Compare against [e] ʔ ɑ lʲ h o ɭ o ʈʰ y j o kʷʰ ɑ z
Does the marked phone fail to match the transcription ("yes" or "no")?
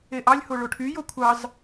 no